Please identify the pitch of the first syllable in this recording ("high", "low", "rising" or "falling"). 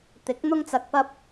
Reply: rising